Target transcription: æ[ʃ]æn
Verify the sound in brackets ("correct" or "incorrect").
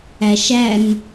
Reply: correct